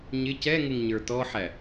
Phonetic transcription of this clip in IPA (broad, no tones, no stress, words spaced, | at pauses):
ɲɪ cɛŋɪŋɲə˞ tɔħæ